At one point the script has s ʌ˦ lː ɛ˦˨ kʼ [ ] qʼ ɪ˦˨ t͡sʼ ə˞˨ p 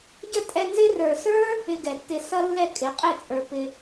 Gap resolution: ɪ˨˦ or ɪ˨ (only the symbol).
ɪ˨˦